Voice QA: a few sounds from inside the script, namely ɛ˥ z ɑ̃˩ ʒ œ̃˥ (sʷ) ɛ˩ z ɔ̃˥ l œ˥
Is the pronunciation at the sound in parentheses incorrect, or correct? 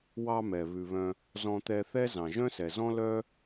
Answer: incorrect